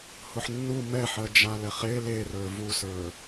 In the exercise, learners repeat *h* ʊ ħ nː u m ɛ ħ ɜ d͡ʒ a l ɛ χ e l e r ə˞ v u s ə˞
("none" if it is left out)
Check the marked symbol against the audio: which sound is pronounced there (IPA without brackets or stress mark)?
h